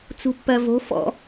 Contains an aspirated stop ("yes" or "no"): no